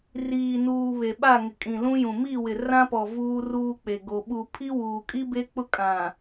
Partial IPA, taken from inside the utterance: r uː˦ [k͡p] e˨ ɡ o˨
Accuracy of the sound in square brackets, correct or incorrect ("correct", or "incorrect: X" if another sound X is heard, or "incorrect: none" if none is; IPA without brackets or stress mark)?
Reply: correct